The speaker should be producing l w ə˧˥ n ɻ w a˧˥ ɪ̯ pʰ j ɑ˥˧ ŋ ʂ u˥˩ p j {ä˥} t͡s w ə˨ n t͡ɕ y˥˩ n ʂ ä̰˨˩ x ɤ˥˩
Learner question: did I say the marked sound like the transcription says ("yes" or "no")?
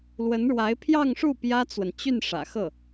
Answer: yes